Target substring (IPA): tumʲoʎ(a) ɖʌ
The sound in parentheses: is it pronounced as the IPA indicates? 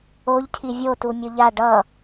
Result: yes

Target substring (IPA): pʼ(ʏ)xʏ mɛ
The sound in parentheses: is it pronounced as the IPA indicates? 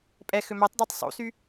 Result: no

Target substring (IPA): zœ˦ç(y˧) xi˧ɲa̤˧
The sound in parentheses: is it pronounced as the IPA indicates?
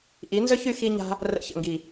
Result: yes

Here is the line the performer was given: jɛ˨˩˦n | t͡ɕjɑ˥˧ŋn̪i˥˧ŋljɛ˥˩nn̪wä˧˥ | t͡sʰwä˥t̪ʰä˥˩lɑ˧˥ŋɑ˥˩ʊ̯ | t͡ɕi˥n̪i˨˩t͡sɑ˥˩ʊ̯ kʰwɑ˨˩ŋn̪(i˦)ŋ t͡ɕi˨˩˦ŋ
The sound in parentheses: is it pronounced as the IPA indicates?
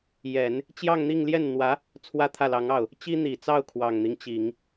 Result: yes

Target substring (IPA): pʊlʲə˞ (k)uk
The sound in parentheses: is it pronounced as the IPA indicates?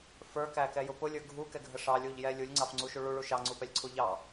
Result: no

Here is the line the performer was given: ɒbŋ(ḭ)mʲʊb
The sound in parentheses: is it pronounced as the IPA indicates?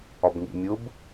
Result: yes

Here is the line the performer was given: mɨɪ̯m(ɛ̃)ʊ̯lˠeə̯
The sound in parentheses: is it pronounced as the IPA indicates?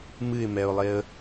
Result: no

